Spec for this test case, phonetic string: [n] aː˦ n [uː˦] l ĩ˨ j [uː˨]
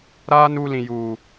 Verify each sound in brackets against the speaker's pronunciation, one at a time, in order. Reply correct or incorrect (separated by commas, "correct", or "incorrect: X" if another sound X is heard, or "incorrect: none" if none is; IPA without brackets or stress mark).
incorrect: ɾ, correct, correct